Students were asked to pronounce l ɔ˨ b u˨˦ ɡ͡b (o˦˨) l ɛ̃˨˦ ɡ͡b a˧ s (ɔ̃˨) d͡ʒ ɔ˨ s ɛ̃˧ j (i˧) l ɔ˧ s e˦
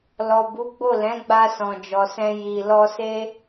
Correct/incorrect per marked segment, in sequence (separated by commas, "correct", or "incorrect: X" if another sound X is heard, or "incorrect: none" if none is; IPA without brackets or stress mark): correct, correct, correct